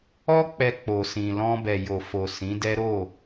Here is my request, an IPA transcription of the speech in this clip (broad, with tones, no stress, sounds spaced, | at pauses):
ɔ˦ k͡p ɛ˧ k͡p o˨ s ĩ˨ l ɔ̃˧ b ɛ˨ j o˨ f o˨ s ĩ˨˦ d ɛ˦ ɾ o˦˨